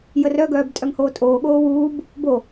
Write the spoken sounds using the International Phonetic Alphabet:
jərœɡœːb tʼœŋhoːtʼoːɠoː wuːb | bo

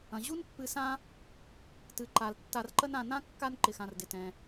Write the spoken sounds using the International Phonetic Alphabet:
ɐ̃˩ ʑu˥npːɨ˨sã˦ | tɨ˩ǃa˩l tːa˨rǃə˦nã˨nã˥ kːa˦n ǃɪ˩xã˩r dɪ˩tɛ̃˩

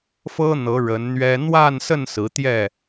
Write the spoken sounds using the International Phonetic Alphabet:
fɤ˦n̪ɤ˨˦ ɻə˨˦nn̪ɥɛ˦ n̪wa˥˨n sə˥˨n sɹ̩˨˦t̪jɛ˥˨

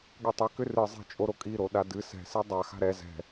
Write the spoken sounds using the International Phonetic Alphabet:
ɠɨtˤi kʏrɨ zˤɛ̤t͡ʃʼoɾokʼi ɾoɗadɨ sɛ̤si dˤa xa̤ɾɛ zɛ̤

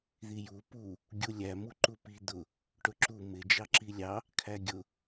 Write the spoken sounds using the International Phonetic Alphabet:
ðiju pu | ɡʲulʲæ muǃupi d̪ʊ | ʈʊǁu mɪ d͡ʒɑǁilʲɑ | kʰæɡʲʊ

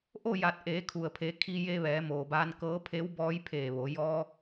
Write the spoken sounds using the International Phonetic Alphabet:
ʔo˥˨ja˧˩t̚ ʔeː˩˧kʰu˩ə̯pʰe˩˧ kʰi˧je˧ʋɛː˩˧ moː˩baː˧nkɤː˧˥ pʰe˧˥wbɔː˧˥jpʰeː˧˩ ʋo˩˧ jɔː˧

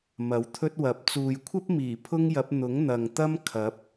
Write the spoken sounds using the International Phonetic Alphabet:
mɐ˨˥wt̪ʰɵ˥t̚wɐ˨˥p̚ t͡suː˨jkʷʰɐ˥p̚miː˨˩ pʰʊ˥ŋjɐ˨˥p̚ n̪ʊ˨˥ŋn̪ɐ˨ŋ t̪ɐ˥mkʰɐ˨˥p̚

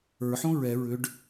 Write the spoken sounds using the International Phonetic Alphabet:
ə˞ħõ ɹɛ ɹʏɖ

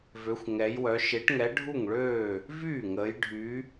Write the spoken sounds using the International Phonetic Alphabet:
vø˨˦xʷŋɛ˨˦jwœ˨˦ ʃe˨˦ʈŋɛ˨˦ ɖʱu˥˩ŋɭøː˥˩ | vyː˥˩ŋəː˨˦j ɖʱy˨˦

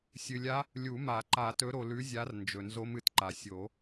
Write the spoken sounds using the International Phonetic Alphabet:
sʲɨ˨lʲa˦˥ | lʲu˨˩˦ma˨˩˦ǃa˨˩˦ tɵ˨˦ɾo˨lʉ˨˦zʲa˨˦r nd͡ʒɵ˨nzo˦˥mɨ˨tǃa˨ sʲo˨˩˦

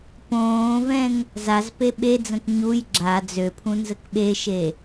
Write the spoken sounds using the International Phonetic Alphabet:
põːvɛ̃ŋ | zaz peɓed͡zə̃k ɲuj ɡ͡ǁa d͡zøpʰũ nzəkɓeʃe

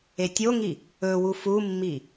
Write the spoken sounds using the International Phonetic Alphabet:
etʲoŋi | ɵwu fumːi

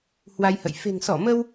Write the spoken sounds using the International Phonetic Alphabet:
hwa˧jhə̰˧˨j fe̤˨˩ŋsɔ˧˩mə˧w

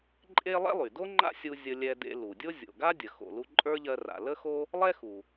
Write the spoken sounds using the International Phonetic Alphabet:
ǃʼe˥ lˠɛ̰˥lˠy˩do˥ ŋ͡ǃa̰˥sʲu˧ zʲə˧lʲɛ˧dḛ˧ lu˩dʲo˥ zʲo̰˩ɡa˥dʲə˩ xo̰˩lu˧ ǃʼə˞˥ʎɜ˧ra̰˩ lə˥xo˥ | lˠɛ˥xu˩

